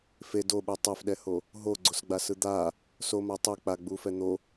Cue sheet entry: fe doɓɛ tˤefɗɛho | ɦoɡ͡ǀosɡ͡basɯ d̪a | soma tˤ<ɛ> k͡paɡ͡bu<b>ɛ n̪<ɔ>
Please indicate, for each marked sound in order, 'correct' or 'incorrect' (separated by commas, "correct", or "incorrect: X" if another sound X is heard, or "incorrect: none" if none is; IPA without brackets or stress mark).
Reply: incorrect: e, incorrect: f, incorrect: o